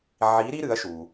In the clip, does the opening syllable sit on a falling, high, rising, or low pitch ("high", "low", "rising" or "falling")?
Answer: rising